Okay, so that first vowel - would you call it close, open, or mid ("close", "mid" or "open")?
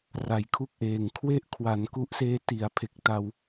open